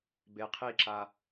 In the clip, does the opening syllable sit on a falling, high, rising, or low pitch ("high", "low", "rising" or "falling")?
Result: low